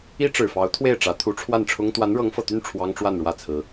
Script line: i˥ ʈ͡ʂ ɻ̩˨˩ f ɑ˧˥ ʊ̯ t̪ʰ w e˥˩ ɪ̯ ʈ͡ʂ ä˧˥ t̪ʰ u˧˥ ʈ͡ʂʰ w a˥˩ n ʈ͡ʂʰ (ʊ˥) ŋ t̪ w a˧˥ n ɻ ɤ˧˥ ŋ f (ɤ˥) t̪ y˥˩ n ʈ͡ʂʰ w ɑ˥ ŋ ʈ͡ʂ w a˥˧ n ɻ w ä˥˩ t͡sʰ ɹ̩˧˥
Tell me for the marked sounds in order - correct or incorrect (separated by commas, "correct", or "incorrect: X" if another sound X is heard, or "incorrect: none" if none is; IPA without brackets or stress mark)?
correct, incorrect: ɤ˨˩